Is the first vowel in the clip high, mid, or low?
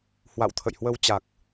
low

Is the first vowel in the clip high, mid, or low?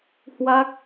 low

